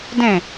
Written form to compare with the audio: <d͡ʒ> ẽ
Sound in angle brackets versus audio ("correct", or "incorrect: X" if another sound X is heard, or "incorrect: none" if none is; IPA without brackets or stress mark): incorrect: d